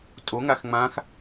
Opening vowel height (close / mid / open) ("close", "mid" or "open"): mid